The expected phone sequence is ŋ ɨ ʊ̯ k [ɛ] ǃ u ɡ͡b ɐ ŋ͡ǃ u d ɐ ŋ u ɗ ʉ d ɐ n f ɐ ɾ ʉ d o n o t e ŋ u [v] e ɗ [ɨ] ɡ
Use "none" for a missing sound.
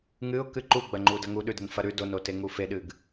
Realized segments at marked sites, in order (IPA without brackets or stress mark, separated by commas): ɨ, f, ɨ